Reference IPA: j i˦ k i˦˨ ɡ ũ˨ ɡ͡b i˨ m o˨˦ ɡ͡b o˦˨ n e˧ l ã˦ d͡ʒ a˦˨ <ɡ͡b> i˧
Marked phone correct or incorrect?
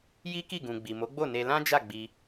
correct